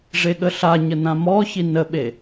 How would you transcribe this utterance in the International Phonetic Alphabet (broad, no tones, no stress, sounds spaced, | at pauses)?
ʐ e ɠ ə ɬ a ɲ ə n ã m ɔ ç i n ə ɓ e